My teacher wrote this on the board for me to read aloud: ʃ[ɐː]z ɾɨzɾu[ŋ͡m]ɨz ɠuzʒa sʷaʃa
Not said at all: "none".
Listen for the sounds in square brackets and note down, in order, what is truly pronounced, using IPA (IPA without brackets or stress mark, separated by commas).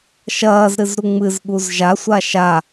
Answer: ɐː, ŋ͡m